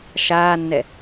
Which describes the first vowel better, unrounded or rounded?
unrounded